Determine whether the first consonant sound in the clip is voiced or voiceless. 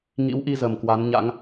voiced